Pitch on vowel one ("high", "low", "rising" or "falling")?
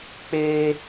high